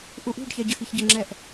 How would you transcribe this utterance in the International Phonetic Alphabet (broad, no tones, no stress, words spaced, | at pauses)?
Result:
ʔuʔṳɖçɛ ɟəxiçɟəŋ͡ǁɛʔ